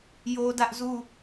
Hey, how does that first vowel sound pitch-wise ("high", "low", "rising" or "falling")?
high